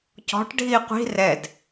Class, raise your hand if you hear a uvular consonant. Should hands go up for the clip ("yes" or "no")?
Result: yes